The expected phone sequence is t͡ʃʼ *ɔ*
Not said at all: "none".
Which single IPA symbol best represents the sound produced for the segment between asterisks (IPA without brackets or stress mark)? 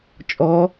ɔ